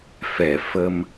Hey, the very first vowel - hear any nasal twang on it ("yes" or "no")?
no